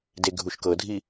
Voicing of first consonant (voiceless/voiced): voiced